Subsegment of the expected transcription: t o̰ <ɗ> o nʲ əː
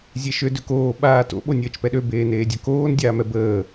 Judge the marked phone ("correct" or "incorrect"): incorrect